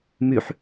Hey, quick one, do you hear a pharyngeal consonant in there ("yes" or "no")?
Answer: yes